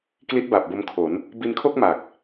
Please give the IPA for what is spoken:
k l i˦˥ t̚ b a˨˩ p̚ b o˧ m kʰ o˩˦ n | b i˧ n kʰ o˥˩ k̚ m a˨˩ k̚

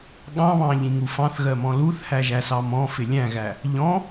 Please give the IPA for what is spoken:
ɠ ɑ̃ β ɑ̃ ʎ ĩ ŋ u f ɑ̃ θ ɣ ɜ m ɔ̃ l u θ h æ ʒ æ s ɑ m ɔ̃ f ɪ lʲ æ̃ ɣ æ | ʎ ɔ̃

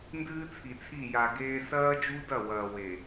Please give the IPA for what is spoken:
n d ɨː˦ t͡sʰ i˨ t͡sʰ i˦˨ j a˨ ɡ eː˦ s ɐː˦ d͡ʒ u˦ d ɐ˦˨ w ɐː˨ w e˨

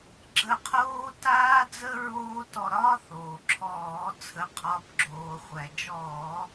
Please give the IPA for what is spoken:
ɡ͡ǁ ə˦˨ qʰ oː˥ t aː˥ d͡z ə˥ ɹ oː˥ t ɔ˦˨ ɾ ɒː˥ θ oː˩ ǁʰ ɔː˧˩˧ t͡sʰ ə˩˧˩ qʰ ɒ˩˧˩ b ɡ͡ǁ oː˩ χʷ æ˩ d͡ʒ ɔː˧˩˧

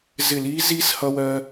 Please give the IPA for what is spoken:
z ɪ˧˩ l iː˦˥ z iː˦˥ s h ʌ˧ w ɜː˧

